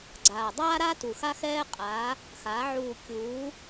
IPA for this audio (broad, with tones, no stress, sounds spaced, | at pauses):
ɡ͡ǀ aː˨˩ dˤ aː˥ ɾ a˥ t u˨˩ x a˥ x ɛː˥ qʼ aː˨˥ | x aː˨˥ ʕ uː˦˨ kʲ uː˨˥